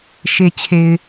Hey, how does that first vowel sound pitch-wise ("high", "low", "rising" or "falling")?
low